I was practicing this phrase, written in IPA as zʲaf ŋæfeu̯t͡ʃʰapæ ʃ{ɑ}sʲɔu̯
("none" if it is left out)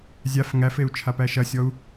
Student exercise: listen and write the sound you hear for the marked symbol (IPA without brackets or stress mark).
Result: ɐ